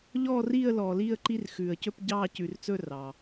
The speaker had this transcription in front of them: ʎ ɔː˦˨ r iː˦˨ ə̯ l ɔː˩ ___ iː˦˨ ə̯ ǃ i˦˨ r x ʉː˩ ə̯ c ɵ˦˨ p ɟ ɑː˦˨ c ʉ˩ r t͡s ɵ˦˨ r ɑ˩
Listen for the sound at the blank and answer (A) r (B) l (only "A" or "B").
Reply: B